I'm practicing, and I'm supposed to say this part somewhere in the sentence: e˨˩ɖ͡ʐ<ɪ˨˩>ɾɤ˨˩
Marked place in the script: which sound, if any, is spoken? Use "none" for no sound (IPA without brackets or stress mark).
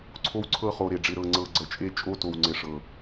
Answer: ɪ˨˩